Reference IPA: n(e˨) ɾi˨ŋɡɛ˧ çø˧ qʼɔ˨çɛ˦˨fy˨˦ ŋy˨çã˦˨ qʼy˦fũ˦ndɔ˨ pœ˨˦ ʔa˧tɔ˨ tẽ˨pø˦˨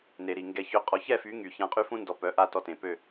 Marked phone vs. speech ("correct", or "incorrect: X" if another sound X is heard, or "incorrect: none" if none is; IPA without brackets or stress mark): correct